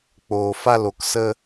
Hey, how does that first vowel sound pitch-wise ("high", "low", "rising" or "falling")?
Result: low